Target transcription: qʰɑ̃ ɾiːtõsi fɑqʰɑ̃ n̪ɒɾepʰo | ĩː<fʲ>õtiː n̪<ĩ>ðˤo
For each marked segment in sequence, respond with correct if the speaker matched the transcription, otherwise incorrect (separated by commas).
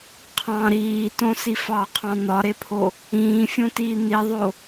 correct, incorrect